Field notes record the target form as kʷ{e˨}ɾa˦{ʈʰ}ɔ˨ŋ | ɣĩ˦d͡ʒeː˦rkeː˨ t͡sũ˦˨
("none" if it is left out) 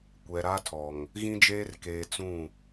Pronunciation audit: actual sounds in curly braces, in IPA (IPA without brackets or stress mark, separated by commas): ɛ˨, tʰ